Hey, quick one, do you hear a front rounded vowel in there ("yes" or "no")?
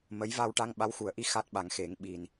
no